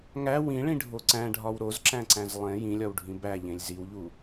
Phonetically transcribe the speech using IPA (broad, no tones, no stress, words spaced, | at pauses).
ŋæ wĩɭĩɖʱo ǀæ̃ɖʱɒw ɾozǁæ̃ǀæ̃z lˠẽ jĩlʲɒwɖʱĩ bæʎẽlʲ ziwʎu